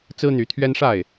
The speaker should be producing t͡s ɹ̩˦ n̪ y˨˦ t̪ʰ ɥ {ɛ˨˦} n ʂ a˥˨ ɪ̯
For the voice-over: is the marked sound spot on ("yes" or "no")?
no